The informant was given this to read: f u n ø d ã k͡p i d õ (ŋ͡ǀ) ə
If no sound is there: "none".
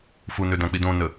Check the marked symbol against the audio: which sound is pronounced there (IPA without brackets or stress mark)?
n